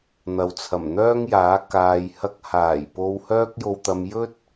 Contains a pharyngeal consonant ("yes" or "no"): no